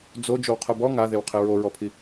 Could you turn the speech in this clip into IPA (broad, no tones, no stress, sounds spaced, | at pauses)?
d͡z o d͡ʒ o w qʰ ʊ b ɔ ŋ a ð e w qʰ ɪ ɹ o ɹ ɔ pʰ i